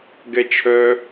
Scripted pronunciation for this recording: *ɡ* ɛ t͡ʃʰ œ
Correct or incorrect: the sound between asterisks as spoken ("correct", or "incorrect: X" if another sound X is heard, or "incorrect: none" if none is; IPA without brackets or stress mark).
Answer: correct